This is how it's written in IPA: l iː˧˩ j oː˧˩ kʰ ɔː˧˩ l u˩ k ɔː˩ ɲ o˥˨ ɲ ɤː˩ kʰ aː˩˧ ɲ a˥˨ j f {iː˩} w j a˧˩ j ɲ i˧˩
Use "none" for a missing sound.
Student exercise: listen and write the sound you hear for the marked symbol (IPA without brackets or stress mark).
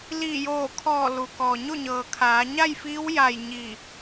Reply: iː˧˥